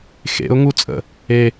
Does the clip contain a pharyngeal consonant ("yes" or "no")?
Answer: no